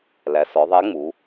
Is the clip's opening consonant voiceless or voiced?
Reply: voiced